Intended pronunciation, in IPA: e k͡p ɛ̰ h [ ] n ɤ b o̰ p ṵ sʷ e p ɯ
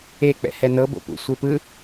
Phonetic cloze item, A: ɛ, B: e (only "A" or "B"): A